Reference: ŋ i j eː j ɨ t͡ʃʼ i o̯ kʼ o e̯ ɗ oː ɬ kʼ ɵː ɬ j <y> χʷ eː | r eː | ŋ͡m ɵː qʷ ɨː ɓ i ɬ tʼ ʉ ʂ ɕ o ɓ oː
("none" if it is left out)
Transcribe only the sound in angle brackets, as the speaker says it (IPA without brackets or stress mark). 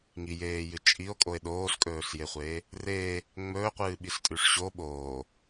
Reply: e